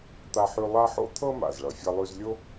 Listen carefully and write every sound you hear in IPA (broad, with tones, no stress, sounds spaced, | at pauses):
t̪ a˧ ħ ʉ˧ lˠ a˥ ħ o̰˥ t̪ʰ ɤ˥ m a̰˩ z ɭ ʌ˩ fʲ ʌ˧ lˠ ʉ˧ z lʲ o˥